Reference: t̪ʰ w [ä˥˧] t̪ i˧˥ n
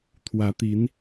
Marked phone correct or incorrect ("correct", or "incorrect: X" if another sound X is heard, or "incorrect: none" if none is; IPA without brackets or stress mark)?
incorrect: ä˧˥